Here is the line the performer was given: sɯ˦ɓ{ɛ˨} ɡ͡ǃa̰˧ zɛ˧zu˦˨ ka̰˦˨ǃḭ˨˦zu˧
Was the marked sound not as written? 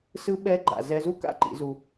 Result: yes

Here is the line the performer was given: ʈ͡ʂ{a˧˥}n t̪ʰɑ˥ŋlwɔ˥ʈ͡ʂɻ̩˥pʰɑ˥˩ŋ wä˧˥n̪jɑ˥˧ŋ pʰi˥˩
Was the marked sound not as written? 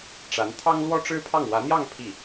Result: no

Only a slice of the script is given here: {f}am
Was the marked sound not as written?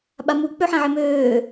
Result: yes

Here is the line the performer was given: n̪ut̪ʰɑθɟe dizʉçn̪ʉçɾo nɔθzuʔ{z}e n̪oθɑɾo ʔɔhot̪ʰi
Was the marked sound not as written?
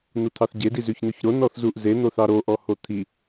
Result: no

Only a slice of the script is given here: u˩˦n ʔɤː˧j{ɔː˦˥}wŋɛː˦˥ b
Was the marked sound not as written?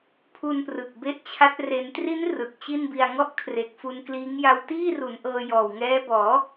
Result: yes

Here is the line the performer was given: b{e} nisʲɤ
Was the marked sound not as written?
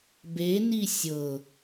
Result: no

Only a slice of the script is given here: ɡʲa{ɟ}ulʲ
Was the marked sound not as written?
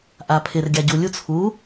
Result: no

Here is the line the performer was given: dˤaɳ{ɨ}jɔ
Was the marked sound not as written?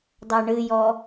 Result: no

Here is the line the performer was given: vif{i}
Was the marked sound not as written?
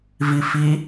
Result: no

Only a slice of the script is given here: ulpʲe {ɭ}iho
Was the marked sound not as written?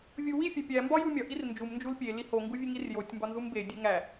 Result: yes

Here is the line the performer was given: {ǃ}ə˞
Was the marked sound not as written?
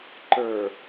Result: no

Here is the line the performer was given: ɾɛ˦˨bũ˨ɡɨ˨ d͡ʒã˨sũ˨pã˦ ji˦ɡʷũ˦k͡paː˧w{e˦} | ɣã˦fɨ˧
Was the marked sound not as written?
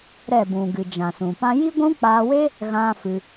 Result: no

